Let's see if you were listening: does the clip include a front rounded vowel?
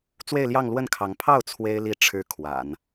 no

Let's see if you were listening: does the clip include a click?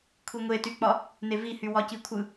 no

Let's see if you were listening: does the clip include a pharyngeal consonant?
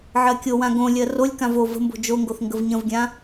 yes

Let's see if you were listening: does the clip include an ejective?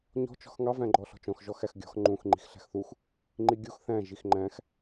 no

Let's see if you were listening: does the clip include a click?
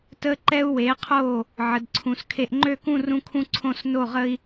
yes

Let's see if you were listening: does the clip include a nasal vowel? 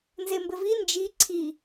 no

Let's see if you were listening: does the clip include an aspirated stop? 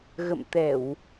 no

